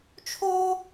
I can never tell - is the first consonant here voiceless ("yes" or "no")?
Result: yes